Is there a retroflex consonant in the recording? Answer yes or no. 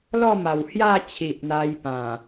no